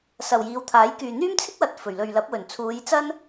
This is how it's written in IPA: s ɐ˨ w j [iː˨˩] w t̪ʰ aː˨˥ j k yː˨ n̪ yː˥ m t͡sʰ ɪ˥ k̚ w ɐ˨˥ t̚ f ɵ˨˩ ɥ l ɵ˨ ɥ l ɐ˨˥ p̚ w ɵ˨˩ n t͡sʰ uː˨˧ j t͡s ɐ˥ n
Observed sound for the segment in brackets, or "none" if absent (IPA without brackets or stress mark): iː˨˧